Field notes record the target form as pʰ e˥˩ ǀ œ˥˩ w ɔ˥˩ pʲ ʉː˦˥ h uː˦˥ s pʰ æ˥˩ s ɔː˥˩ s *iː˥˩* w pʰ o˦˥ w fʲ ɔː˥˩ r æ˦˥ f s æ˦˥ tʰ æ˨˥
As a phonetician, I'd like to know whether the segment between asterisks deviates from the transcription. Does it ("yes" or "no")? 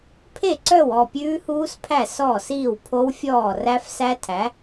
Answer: no